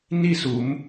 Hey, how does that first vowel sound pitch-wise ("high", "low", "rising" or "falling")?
falling